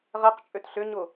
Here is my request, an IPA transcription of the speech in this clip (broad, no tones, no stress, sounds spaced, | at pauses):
ʁ ɛ q t͡ʃʼ ø t ɬ ʏ ɲ ʊ